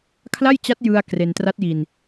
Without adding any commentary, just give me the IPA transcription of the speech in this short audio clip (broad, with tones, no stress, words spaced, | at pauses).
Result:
kʰla˥˩jt͡ɕa˦˥t̚ jɯ˧a̯ kre˧n tra˦˥t̚ji˧n